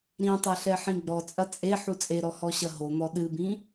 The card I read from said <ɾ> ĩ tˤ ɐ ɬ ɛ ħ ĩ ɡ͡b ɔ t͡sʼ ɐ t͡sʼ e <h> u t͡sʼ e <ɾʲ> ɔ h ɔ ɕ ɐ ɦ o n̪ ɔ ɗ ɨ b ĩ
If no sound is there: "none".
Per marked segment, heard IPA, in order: ɾ, ħ, ɾ

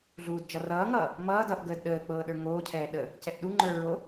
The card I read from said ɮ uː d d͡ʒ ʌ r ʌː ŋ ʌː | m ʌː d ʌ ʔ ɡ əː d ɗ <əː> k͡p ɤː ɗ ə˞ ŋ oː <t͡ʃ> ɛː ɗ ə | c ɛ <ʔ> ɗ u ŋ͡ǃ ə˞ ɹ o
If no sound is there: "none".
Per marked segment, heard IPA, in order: əː, cʰ, ʔ

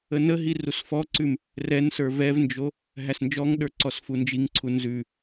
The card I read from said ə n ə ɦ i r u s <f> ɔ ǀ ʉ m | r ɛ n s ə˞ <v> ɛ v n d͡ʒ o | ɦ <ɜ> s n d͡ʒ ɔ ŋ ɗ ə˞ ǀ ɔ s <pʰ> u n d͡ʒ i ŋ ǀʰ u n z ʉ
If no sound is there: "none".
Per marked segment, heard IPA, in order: f, v, æ, f

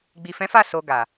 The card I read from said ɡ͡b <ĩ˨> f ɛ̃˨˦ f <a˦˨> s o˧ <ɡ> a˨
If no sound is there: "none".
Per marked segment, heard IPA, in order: i˨, a˦˨, ɡ

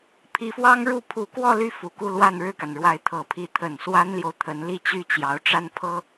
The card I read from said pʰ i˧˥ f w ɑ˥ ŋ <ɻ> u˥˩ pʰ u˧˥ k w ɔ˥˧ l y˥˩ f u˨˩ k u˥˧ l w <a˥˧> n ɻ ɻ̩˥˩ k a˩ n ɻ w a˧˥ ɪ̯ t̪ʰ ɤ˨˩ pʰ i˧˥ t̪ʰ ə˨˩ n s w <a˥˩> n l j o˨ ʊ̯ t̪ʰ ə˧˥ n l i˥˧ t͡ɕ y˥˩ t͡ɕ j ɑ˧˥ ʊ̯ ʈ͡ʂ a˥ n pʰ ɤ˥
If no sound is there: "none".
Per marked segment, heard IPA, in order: ɻ, a˥˧, a˥

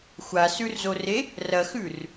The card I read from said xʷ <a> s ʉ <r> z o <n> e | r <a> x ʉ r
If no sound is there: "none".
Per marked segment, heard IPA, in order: a, r, r, ɐ

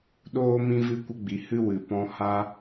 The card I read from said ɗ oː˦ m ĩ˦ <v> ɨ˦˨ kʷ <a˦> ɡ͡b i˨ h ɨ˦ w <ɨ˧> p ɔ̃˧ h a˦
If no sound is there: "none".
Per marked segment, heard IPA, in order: v, ə˦, ɨ˨

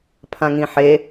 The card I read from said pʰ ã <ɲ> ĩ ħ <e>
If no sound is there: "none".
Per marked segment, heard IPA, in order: ŋ, e

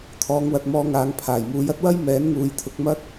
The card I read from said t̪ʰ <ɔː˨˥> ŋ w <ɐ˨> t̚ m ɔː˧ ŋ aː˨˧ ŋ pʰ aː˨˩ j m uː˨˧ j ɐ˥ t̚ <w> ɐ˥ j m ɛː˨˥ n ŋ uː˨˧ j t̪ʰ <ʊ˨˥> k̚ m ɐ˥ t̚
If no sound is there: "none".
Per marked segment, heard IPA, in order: ɔː˨˧, ɐ˨, w, ʊ˨˥

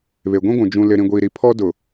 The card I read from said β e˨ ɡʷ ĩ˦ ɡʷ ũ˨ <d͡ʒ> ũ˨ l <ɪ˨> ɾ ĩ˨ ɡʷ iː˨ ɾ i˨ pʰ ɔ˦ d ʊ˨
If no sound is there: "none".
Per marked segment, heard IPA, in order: d͡ʒ, ɪ˨

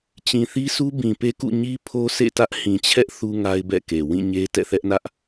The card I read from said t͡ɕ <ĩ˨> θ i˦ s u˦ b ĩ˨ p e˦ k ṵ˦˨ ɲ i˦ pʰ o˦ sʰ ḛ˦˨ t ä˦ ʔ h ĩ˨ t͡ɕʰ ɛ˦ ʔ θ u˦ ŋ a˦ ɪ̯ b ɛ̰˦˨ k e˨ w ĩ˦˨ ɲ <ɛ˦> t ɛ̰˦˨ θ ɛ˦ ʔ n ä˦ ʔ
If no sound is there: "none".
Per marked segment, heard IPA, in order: ĩ˨, e˦

